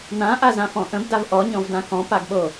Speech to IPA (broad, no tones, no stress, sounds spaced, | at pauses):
n ã ʔ a z ã f ɔ̃ ʔ ə̃ b d a v ʔ ɔ ɲ ɔ̃ v d ã k ɔ̃ p a ɡ ɓ o